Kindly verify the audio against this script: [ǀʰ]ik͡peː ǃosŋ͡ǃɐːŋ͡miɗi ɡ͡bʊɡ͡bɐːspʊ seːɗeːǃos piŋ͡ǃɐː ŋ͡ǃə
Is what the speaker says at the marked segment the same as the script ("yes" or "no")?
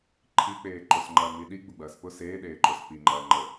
no